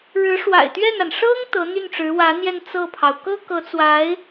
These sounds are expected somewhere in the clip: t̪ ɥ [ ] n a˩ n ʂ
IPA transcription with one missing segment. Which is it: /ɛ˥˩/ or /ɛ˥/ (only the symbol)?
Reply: ɛ˥˩